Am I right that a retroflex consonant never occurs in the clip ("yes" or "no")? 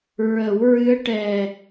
no